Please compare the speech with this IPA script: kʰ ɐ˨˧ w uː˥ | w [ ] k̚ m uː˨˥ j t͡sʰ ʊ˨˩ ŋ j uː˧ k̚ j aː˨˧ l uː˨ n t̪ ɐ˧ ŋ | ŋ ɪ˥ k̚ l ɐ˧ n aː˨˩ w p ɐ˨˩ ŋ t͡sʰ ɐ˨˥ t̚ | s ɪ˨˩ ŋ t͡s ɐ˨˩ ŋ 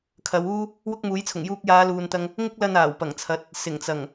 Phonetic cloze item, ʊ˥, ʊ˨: ʊ˥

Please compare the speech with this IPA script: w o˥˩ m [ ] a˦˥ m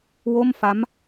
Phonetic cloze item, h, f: f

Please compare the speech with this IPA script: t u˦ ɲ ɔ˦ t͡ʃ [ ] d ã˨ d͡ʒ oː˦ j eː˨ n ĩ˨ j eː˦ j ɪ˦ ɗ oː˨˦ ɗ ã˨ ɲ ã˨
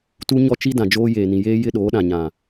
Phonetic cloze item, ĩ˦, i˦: i˦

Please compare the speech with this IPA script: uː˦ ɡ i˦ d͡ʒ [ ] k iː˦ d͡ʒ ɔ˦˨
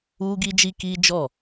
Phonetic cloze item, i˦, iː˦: i˦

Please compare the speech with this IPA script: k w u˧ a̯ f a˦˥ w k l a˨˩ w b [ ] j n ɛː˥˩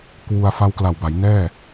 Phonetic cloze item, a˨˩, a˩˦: a˩˦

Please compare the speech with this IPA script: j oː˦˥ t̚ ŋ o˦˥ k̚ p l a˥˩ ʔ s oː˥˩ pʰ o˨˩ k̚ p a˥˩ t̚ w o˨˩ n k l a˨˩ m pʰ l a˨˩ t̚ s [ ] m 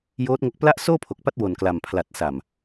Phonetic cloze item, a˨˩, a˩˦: a˨˩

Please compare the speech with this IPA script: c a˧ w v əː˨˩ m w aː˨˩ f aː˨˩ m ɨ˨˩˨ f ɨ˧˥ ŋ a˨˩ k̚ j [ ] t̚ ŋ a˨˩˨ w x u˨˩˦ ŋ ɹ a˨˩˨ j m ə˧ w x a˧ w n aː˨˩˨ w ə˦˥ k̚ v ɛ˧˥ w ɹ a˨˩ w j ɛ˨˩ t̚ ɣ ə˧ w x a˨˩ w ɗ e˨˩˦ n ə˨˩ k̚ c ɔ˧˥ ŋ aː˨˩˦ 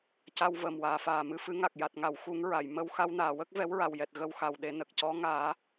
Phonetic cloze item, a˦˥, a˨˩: a˨˩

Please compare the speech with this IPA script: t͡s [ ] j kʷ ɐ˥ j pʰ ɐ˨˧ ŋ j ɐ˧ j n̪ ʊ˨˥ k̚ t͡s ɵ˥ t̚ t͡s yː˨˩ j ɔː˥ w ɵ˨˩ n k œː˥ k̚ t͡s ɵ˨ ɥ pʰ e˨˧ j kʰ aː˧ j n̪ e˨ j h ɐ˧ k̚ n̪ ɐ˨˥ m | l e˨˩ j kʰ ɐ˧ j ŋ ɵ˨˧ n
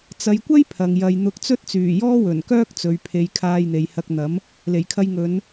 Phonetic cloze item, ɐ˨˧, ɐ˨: ɐ˨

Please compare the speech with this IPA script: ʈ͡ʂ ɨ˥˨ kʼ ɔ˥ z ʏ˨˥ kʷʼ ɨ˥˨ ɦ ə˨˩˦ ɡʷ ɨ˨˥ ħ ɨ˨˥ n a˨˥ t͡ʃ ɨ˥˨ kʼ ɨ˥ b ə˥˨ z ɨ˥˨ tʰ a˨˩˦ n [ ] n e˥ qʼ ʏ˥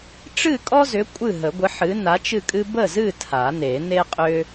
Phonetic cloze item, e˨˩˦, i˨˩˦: e˨˩˦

